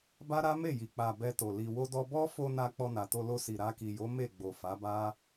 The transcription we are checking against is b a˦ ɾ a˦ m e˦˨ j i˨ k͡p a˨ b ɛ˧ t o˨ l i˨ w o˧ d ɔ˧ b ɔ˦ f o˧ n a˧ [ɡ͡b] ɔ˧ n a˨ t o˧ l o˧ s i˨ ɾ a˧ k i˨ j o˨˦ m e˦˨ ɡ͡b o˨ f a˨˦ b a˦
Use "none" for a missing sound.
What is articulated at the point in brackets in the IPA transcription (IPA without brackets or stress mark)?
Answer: k͡p